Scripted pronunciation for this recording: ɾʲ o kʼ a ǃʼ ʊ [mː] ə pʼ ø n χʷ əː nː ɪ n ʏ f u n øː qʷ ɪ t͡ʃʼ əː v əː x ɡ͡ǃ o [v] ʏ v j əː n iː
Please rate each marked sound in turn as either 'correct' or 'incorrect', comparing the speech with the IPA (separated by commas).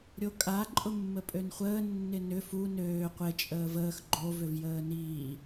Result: correct, correct